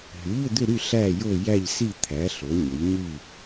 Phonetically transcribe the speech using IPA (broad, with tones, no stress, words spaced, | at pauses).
ɦy˩˥ʎʏ˥˨d̪ʏ˥˨ɾy˥˨ ɬæ˥˨jo˥˨ jæ˥˨ʎsi˥˨ t̪ʰæ˩˥ ɬo˩˥ɲə˩˥ʎɲy˥˨